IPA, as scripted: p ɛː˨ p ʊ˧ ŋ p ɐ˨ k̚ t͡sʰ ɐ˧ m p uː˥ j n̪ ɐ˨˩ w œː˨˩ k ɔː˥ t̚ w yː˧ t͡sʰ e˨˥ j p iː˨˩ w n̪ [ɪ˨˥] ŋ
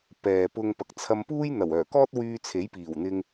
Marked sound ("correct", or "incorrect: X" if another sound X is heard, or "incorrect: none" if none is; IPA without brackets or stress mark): incorrect: ɪ˧